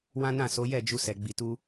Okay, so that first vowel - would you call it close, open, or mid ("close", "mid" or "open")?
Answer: open